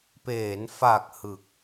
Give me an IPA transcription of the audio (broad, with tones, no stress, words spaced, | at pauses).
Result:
peː˩˦nfa˨˩k̚ hɯ˨˩k̚